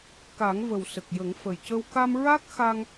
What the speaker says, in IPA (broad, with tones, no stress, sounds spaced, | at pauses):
k a˨˩˦ ŋ v ə˨˩ w s ə˨˩ k̚ j ə˨˩˦ ŋ f ə˨˩ j c ə˧ w k a˧ m ɹ a˦˥ k̚ x a˧ ŋ